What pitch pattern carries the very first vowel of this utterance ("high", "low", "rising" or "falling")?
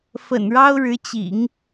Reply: low